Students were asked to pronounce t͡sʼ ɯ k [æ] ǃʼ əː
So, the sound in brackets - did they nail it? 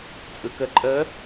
no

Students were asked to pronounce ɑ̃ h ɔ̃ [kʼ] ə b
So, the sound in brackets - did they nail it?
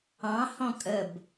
yes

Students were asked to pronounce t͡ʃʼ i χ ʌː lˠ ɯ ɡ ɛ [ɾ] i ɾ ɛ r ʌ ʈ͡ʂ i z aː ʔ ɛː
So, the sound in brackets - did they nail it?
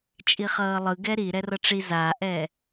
yes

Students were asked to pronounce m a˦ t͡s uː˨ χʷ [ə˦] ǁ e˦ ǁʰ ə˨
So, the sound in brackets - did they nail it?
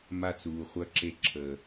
no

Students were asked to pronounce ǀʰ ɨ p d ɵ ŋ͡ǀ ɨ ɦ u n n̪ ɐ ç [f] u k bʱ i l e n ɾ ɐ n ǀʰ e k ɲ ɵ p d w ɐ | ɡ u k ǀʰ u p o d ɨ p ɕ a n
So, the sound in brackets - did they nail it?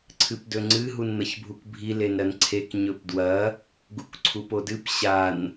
no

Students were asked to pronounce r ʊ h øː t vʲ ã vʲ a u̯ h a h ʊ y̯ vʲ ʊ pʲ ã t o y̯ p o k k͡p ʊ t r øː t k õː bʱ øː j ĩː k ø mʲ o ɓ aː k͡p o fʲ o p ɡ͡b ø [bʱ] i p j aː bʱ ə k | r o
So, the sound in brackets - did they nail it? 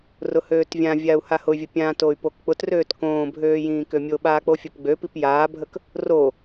no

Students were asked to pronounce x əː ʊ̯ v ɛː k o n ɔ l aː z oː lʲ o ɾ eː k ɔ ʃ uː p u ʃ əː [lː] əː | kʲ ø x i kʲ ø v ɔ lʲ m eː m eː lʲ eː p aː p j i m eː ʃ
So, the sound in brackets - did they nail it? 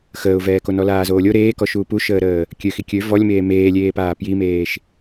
no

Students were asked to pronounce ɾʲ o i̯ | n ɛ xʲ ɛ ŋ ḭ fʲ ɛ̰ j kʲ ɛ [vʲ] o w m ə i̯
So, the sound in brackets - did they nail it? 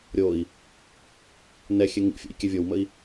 yes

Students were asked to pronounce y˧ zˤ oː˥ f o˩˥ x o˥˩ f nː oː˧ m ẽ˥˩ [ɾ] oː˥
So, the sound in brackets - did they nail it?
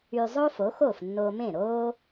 yes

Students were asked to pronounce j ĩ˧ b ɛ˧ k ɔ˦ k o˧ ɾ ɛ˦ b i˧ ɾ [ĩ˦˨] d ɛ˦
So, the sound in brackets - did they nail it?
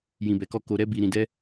no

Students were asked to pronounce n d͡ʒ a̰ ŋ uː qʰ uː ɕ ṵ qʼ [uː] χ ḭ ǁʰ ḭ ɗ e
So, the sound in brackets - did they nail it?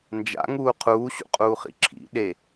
yes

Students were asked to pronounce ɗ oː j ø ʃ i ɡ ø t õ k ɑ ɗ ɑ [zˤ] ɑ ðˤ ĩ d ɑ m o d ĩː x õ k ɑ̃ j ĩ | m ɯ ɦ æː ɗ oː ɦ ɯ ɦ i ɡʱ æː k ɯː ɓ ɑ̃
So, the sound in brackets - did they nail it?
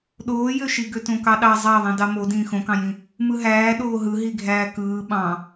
yes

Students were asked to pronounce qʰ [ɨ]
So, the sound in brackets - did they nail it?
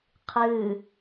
yes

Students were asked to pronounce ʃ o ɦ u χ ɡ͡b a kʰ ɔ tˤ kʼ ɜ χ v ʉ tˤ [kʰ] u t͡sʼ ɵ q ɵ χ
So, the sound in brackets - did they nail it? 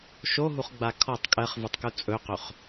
no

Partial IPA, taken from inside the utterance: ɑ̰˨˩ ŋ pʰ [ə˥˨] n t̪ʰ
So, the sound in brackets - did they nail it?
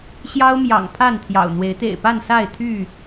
no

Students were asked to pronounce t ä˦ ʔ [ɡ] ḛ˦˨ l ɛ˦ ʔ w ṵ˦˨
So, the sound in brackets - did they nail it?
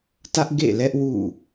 yes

